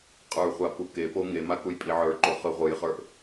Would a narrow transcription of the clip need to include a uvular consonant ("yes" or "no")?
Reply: yes